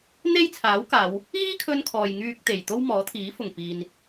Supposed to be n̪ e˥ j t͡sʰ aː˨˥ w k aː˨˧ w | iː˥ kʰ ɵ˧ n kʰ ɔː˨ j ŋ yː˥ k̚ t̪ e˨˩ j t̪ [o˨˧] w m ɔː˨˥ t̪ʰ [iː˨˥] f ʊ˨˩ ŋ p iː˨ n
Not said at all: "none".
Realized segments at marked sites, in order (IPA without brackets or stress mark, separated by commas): o˥, iː˨˥